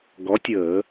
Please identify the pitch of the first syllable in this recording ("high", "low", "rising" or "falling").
rising